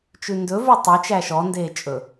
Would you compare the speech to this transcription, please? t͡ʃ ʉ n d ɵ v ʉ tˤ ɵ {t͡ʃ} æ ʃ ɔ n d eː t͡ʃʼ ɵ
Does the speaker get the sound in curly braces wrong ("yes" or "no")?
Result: no